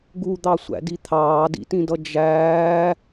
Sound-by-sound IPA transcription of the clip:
ɡ u d̪ ɑ sʷ æ̰ d i t̪ʰ ɑː d ḭ t ĩ d ʌ d͡ʒ æː

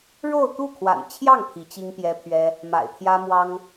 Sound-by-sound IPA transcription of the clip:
ɻ o˥˧ ʊ̯ t̪ u˥˩ kʰ w a̰˨˩ n t͡ɕʰ j ɑ˥˩ ŋ pʰ i˧˥ t͡ɕ i˥ ŋ p j ɛ˥ pʰ ɥ ɛ˥ | m a̰˨˩ ɪ̯ t̪ʰ j ä˥ m w ɑ˥ ŋ

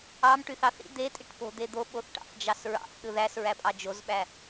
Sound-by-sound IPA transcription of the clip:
ɑ m ʈ y θ ɑ θ ḭ d̪ e tʼ i ʈ p o̤ d̪ e d̪ o ɓ o θ ʈ ɑ̰ θ d͡ʒ ɑ s ɹ ɑ̰ θ ɗ ɯ ð æ s ɹ æ pʼ ɑ d͡ʒ o z ɓ æ

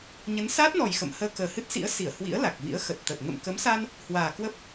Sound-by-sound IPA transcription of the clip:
ɲ ə˨˦ n s aː˦˥ t̚ n ɔ˨˩ j x ə̰˧˨ m h əː˧ k əː˨˩ h ɨ˦˥ t̚ s ḭ˧˥ ə̯ s i˧˩ ə̯ h w ḭ˧˥ ə̯ l a˨˩ k̚ v ḭ˧˥ ə̯ x ə˨˩ t̚ t̪ ə˨˩ t̚ ŋ ə̰˧˨ m k ə˨˦ m s a˧ n | h w aː˨˩ k w ə˦˥ p̚

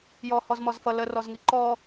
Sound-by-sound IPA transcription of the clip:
j ɔ h ɔ z m ɔ z f ʌ l ə r ɔ z ŋ i ǃ ɔ

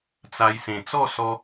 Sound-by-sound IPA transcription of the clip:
t͡s a˧ j s ẽ˨˩ t͡s ɔ˥˧ s ɔ˧

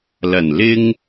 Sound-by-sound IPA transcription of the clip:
l ɐ˨˩ n l ɪ˧ ŋ

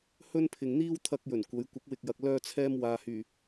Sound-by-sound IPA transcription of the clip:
h ɵ˥ n pʰ ɪ˨ ŋ n̪ iː˥ w t̪ʰ ɐ˧ k̚ j ɵ˨˩ n kʷ ɐ˨˧ j kʷ ɐ˨˥ k̚ w ɪ˨ k̚ j ɐ˨ k̚ l œː˧ t͡sʰ ɛː˧ m w aː˨ h yː˨˩

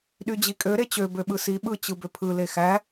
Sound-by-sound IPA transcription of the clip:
ɗ y d͡ʑ i kʼ ø ɾ e t͡ɕ ø b ø ɓ ɯ s i ɓ ɯ t͡ɕ ɯ b ø pʰ ɯ l e x æ

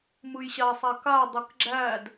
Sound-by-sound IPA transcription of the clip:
m ɯ j ɕ a sˤ a k a dˤ ɯ k ɡ͡ǁ æ d

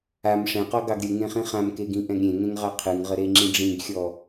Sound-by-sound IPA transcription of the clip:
a m ʂ ɛ̃ q ɔ ɡ ɑ ɡ ɾʲ ɯ ŋ ẽ χ ĩ χ ã m k e ɡ ĩ ʔ ɛ̃ ɡ ɾʲ ẽ ŋ ẽ ŋ ʁ ɑ qʰ ɯ ŋ ʁ ə ɾ e ŋ͡ǁ ĩ ɖ͡ʐ ĩ ɡ xʲ ɔ

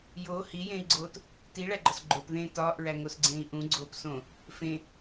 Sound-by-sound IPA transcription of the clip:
j oː h i j ẽː i̯ ɡ͡ǀ oː t | t i ɭ æ ɡ͡ǃ ɒ s ɡ͡ǃ o p ð ẽː t ɒː ʔ ɹ æ ŋ o s ɡ͡ǀ ẽː i̯ ʔ ũ ɡ͡ǀ oː p s õ | f ẽ

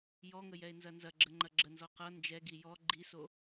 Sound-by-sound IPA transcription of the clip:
j ɔ ŋ ə j ɛ e̯ n z ɐ n z ɐ ɡ͡ǁ ə ŋ͡ǃ ɐ ɡ͡ǁ ə n z ɔ q ʌ n d͡ʒ ɛ ɡ i j ɔ ɡ͡ǃ i s o

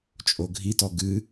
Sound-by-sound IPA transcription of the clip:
t͡ʃʼ o ɡʱ i t ɔ ɡ ɨ

